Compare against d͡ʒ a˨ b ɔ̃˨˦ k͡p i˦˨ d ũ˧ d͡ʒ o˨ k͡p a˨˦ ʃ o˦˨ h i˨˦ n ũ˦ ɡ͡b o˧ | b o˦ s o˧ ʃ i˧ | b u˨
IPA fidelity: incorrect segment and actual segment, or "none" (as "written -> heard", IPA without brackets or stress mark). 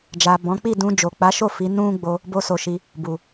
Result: h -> f